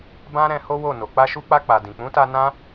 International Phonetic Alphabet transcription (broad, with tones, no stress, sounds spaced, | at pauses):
b ã˦ ɾ ɛ̃˧ h o˦ w o˦˨ n o˨ k͡p a˧ ʃ u˧ k͡p a˧ k͡p a˨ d ĩ˨ k͡p ũ˨˦ t a˧ n ã˦